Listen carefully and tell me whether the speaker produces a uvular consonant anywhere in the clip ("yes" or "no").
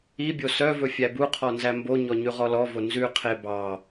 yes